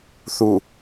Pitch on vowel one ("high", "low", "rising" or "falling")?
low